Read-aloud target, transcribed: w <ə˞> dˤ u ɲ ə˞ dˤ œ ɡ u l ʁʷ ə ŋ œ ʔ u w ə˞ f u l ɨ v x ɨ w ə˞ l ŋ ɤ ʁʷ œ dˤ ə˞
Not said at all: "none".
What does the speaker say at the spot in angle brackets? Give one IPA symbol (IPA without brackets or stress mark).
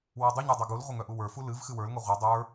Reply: ɤ